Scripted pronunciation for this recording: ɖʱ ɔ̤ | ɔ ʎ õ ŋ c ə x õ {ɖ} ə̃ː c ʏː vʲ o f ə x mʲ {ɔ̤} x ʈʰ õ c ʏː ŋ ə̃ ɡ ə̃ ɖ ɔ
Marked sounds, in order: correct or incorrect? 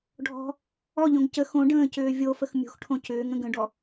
correct, incorrect: o̤

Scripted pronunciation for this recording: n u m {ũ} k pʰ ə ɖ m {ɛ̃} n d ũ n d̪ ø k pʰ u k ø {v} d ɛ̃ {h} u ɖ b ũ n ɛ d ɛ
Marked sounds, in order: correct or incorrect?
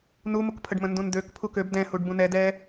incorrect: u, incorrect: ə̃, incorrect: b, correct

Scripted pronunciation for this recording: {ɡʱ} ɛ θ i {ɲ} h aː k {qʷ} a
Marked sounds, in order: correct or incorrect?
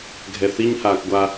correct, correct, incorrect: ɡʷ

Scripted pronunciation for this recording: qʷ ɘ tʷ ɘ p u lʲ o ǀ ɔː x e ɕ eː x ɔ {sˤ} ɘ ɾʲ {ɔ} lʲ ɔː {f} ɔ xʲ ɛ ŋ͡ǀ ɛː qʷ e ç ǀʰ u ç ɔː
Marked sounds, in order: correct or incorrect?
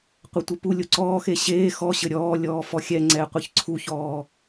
incorrect: ɕ, incorrect: ɔː, correct

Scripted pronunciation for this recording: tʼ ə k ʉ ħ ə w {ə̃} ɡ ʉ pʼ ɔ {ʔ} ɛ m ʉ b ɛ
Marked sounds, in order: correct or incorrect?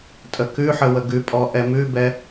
incorrect: ə, correct

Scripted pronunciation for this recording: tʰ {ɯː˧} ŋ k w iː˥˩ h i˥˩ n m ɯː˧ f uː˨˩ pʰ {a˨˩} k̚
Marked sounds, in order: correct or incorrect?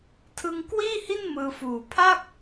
incorrect: ɯ˧, incorrect: a˥˩

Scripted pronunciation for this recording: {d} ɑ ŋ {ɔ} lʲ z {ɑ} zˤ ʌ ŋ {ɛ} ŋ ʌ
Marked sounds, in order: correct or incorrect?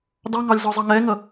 correct, incorrect: ɑ, incorrect: ɔ, correct

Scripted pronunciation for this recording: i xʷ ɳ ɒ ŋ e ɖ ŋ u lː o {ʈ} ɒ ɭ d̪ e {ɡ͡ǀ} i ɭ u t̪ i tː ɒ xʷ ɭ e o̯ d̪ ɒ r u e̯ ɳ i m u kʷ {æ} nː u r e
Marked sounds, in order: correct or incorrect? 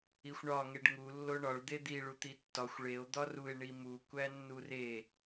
incorrect: ɳ, incorrect: d̪, correct

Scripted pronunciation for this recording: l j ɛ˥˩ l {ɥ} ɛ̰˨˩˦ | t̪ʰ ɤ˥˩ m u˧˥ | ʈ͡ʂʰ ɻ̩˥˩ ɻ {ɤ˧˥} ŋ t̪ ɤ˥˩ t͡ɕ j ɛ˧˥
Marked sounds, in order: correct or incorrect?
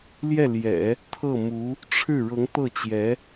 incorrect: j, correct

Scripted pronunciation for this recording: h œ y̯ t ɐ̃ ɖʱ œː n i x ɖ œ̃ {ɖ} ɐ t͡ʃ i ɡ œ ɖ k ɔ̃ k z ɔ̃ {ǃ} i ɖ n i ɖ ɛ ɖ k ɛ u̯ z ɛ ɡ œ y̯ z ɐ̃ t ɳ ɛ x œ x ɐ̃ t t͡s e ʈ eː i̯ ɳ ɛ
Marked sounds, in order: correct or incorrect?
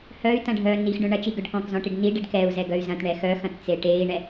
incorrect: ɳ, incorrect: ʈ

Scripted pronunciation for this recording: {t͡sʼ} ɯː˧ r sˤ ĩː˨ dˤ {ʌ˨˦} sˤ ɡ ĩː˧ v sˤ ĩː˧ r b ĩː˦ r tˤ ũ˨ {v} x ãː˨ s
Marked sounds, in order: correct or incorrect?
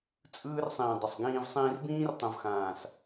correct, incorrect: ʌ˨, correct

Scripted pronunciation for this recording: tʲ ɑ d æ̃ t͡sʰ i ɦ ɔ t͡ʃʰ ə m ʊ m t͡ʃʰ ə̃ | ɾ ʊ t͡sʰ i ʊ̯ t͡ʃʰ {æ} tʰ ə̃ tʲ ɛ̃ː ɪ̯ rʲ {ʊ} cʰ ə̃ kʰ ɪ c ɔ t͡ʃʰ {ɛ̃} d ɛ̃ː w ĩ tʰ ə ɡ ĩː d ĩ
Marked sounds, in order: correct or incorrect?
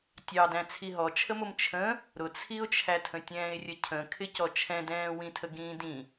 correct, incorrect: ə, correct

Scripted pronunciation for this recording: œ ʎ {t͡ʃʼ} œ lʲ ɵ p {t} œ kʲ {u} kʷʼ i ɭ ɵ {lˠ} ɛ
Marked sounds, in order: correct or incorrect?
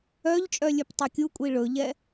correct, incorrect: tˤ, correct, incorrect: ʎ

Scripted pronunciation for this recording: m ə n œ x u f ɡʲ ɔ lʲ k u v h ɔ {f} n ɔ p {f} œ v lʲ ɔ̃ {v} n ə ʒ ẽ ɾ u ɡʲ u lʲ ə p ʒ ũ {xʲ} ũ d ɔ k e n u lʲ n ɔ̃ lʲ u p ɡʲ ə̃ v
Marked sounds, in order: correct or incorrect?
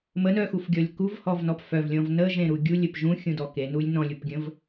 incorrect: v, correct, correct, correct

